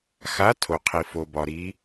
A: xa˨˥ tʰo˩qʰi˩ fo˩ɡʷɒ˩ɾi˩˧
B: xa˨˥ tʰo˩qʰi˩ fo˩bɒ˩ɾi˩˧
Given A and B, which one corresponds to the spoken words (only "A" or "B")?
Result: B